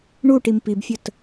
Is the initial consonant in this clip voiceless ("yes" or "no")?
no